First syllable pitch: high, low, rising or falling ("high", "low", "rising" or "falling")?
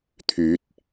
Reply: rising